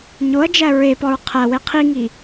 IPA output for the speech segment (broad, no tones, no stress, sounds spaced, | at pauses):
ɲ o ɐ̯ d͡ʒ æ ɹ e p ɒ ɹ qʰ æ w e qʰ i ŋ i